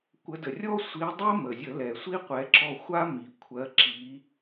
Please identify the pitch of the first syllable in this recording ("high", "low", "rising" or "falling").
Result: rising